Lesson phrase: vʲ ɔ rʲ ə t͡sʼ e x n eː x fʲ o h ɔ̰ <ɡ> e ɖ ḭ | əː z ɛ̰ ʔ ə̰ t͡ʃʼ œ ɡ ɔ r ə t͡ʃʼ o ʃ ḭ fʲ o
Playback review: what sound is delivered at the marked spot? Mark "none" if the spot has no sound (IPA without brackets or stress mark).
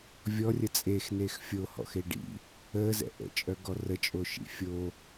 x